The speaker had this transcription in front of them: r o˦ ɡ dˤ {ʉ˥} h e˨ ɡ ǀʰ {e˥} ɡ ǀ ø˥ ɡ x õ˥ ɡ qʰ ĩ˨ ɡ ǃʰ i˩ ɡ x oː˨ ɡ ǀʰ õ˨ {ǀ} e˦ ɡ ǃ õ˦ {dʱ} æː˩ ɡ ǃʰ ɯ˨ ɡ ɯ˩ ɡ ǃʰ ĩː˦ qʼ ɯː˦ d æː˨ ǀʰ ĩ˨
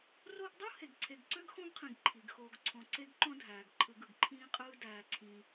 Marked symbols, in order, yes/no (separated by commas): no, no, yes, yes